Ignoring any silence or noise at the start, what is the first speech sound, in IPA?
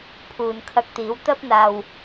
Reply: pʰ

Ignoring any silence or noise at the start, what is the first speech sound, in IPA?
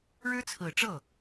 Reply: ɻ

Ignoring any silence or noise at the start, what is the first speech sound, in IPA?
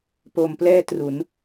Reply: p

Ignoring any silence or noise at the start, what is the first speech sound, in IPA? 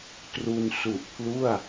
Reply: t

